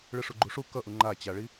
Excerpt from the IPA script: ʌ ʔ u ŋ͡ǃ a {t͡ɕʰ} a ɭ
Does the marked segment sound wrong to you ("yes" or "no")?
yes